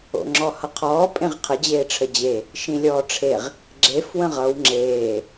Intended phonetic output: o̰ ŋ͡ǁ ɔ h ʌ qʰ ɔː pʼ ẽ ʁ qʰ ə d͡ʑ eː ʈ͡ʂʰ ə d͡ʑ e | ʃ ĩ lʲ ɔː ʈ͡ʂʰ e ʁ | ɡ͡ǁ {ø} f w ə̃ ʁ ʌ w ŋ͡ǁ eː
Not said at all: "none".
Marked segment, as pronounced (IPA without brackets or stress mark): e